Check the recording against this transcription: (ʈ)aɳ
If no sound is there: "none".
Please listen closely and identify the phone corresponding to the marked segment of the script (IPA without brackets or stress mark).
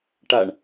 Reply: ʈ